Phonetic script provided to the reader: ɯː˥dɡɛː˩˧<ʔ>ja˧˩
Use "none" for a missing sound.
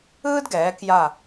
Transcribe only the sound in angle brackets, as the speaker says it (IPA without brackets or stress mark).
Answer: k